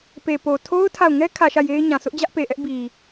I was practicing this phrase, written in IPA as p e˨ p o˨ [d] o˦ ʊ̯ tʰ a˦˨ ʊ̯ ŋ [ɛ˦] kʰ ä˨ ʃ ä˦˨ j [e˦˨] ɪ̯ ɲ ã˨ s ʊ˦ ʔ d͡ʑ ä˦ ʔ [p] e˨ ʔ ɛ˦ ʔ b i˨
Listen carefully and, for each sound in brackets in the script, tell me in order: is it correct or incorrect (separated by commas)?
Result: incorrect, correct, incorrect, correct